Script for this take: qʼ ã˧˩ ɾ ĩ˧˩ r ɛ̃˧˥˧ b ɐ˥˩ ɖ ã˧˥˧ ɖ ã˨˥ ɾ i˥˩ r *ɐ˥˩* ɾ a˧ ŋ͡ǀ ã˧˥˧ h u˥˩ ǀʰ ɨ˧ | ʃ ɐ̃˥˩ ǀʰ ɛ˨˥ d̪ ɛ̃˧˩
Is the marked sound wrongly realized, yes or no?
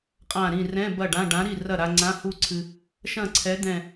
no